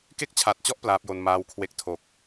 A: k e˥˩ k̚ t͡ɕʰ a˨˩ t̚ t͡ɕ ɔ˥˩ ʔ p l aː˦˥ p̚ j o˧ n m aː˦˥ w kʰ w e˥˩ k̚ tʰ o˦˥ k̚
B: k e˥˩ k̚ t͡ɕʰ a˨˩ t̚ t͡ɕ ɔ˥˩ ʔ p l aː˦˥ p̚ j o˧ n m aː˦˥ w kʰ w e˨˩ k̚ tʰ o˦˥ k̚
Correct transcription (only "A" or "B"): A